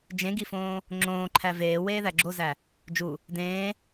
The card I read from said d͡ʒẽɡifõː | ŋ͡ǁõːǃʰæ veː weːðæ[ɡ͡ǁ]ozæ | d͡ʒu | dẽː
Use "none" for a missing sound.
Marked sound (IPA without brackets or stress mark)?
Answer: ɡ͡ǁ